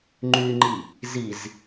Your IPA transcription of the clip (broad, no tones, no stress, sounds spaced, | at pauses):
ŋ͡ǃ y ŋ͡ǃ i | z i z